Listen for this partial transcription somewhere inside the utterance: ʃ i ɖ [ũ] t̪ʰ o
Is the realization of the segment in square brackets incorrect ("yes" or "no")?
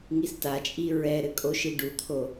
yes